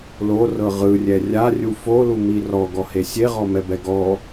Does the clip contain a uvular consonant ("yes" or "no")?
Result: yes